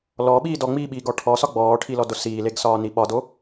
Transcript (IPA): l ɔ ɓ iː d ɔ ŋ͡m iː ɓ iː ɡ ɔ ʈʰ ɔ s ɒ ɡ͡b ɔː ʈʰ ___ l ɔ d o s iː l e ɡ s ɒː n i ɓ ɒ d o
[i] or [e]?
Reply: i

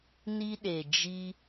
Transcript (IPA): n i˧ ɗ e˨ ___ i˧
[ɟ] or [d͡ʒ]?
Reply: d͡ʒ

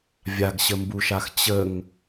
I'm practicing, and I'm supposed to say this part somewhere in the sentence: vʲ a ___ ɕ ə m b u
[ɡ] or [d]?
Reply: ɡ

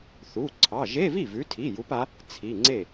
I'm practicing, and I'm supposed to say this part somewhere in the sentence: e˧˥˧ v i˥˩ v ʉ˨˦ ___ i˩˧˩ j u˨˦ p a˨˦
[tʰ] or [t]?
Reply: tʰ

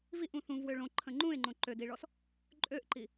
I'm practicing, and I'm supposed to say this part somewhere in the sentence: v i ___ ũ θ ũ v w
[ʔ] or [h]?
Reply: ʔ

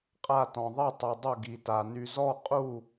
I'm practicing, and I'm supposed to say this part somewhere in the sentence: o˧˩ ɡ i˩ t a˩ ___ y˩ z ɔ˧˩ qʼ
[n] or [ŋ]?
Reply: n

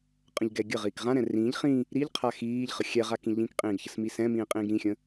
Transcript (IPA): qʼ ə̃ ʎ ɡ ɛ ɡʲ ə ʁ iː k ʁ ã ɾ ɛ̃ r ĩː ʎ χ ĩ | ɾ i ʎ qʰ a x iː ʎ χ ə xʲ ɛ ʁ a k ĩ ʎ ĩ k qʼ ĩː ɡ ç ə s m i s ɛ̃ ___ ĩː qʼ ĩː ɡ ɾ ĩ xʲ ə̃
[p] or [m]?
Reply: m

